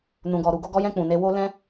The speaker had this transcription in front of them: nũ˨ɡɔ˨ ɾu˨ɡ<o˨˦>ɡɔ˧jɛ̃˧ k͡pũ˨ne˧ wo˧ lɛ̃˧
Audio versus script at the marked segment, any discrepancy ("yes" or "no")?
yes